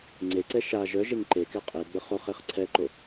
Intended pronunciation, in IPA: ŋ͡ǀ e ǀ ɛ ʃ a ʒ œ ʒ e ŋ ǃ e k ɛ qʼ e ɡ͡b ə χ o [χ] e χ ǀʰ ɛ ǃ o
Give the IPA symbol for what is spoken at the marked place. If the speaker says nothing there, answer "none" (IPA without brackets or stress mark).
χ